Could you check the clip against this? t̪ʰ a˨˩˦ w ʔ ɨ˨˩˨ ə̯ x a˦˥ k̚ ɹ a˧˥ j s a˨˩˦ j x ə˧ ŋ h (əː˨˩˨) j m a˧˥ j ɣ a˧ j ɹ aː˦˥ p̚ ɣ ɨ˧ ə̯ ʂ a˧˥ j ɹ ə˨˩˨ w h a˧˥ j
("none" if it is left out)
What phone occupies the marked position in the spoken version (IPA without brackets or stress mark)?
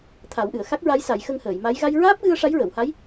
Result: əː˨˩˨